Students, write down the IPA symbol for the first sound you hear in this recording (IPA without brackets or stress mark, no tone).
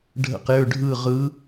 ɖʱ